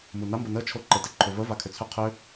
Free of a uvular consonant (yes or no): no